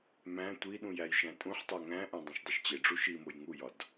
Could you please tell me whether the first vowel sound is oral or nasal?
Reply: nasal